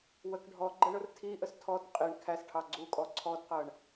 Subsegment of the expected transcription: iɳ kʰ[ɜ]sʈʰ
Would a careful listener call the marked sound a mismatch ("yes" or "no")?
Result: yes